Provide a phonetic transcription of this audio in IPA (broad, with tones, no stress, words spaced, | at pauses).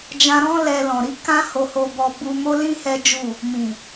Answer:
d͡ʒã˧ɾɔ̃˦ lɛ˧lɔ̃˨ɾi˨˦ kã˦ho˧ho˧bɔ˧ bu˧mo˦lĩ˦ hɛ˦d͡ʒu˦˨ | mĩ˨